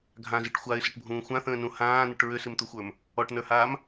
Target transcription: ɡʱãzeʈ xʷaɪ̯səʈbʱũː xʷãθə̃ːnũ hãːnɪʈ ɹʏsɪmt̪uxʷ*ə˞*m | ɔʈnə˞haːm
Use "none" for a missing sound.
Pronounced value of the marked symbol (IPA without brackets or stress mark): ə˞